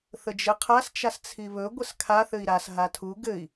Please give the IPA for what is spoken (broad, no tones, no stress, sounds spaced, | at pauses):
θ ə d͡ʒ ɘ qʰ a s t͡ʃ a s t͡sʰ i β ɵ ɡʷ ə s kʰ a θ ɘ i̯ ɾ a s ɦ a tʰ u ɡ ɘ i̯